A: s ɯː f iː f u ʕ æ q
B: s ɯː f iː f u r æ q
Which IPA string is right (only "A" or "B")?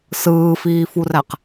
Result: B